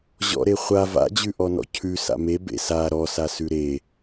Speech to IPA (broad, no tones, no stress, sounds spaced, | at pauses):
ʑ ɔ̰ ɾ e χʷ a v a̰ d͡ʑ ʉ ʔ ɔ n ɔ̰ cʰ ʉ s a̰ m e b ḛ s a ɾ ɔ s a s ʉ ɾ e